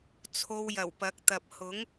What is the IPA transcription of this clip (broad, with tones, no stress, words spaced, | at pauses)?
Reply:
t͡sʰo˧wjɐ˨˩wpɐ˨˥k̚ t̪ɐ˨p̚hʊ˨˥ŋ